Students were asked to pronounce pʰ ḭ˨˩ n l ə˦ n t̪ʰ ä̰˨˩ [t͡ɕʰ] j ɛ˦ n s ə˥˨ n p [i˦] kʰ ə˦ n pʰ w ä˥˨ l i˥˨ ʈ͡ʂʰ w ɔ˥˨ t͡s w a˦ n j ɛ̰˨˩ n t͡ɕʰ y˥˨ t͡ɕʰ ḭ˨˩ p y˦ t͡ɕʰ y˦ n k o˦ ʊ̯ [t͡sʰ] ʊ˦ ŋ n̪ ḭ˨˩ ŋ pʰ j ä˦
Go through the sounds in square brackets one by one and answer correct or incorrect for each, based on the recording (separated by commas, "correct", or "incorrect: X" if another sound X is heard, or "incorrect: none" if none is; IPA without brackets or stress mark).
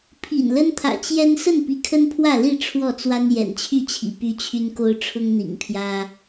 incorrect: t͡ɕ, incorrect: i˨˦, incorrect: ʈ͡ʂʰ